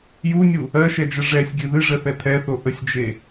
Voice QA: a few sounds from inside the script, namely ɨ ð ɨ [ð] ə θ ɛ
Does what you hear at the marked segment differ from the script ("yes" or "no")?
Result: yes